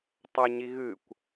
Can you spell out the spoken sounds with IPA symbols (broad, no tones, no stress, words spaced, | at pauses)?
tˤɐɲi ɣɨkʷ